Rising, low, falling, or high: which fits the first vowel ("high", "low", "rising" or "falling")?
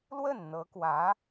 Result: falling